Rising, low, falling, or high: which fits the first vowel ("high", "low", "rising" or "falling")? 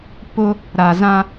high